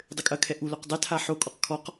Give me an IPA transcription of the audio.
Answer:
dˤ ɘ kʼ ɐ kʰ ɛ ʔ u l o q dˤ ɛ tʰ a ħ o kʼ ɔ q kʰ ɔ q

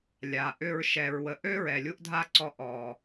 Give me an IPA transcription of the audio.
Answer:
lʲ a˨ ʔ ʏ˧ ɹ ʃ ɛ˨ ɹ w ə˨ ʔ ø˦ ɹ ɛ˨ lʲ u˦ ʔ dʱ a˦ ǀ ɔ˧ ʔ ɔ˨

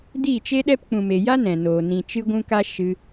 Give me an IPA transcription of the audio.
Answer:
d iː˦˨ t͡ʃ e˦ ɗ ɛ˦ p k͡p ũ˨ m e˨ j a˦ n ɛ̃˨ n oː˨ n ĩ˨ t͡ʃ ɨ˧ ɡʷ ũ˦ k a˦ ʃ ɨ˧

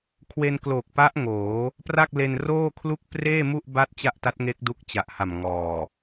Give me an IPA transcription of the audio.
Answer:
kʰ w e˧ n k l oː˨˩ k̚ p a˦˥ ʔ ŋ oː˩˦ | p r a˥˩ k̚ l e˧ n r oː˥˩ kʰ l u˥˩ k̚ p r eː˥˩ m u˥˩ ʔ b a˥˩ t̚ t͡ɕ a˥˩ ʔ t a˦˥ t̚ ŋ e˦˥ k̚ d u˦˥ k̚ t͡ɕ a˨˩ ʔ h a˨˩ m ŋ ɔː˨˩

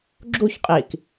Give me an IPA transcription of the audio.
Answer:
ɡ͡ǁ u ç qʼ i k

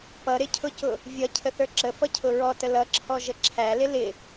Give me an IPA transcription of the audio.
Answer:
p ʌ ɾ ɪ cʰ ʊ c ʊ | vʲ ʌ cʰ ə θ ə˞ ǁ ə f ʌ cʰ ʊ ɹ ɔ t ə l ʌ ǁʰ ɔ ʒ ə ǁʰ æ l ɪ l ɪ

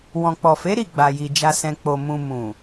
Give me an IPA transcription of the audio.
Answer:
w ɔ̃˨ k͡p ɔ˨ f e˨˦ ɾ i˦˨ ɡ͡b a˨ j i˨ d͡ʒ a˨ s ɛ̃˨ k͡p o˨ m ũ˨ m ũ˨

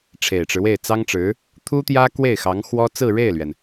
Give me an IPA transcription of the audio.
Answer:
ʈ͡ʂʰ e˨˩ ɪ̯ ʈ͡ʂ ɻ̩˦ w e˥˩ ɪ̯ t͡s ɑ˥ ŋ ʈ͡ʂ ɻ̩˧˥ | t̪ʰ u˥ t̪ j ä˥ k w e˥˩ ɪ̯ x ɑ˧˥ ŋ x w ɔ˥ t͡s ɹ̩˥˧ ɻ e˥˩ ɪ̯ l ɥ ɛ˩ n

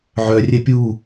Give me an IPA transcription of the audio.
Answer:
ʕ œ rʲ ɛ pʲ u

